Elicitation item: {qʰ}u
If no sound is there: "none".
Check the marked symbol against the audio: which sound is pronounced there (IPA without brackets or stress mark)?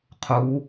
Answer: qʰ